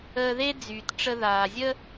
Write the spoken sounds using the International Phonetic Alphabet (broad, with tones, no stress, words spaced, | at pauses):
əː˧ðe˥d͡zyː˩t ʈ͡ʂə˧ðaː˩zʲə˥